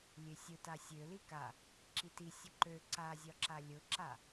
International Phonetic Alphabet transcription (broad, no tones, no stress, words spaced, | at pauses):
lʲøsʲʊta sʲøli ka | ǁiti sʲəǃø ǀazʲɒǁa lʲʊǁa